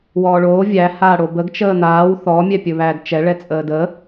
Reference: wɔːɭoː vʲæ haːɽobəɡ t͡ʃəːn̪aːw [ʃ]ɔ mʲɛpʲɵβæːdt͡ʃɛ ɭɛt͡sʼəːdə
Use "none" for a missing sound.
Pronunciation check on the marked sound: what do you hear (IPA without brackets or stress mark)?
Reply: θ